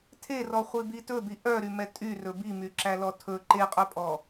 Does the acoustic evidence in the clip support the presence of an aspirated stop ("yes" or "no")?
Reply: yes